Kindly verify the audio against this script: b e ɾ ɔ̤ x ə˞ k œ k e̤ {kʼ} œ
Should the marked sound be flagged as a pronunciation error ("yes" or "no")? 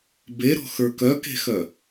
yes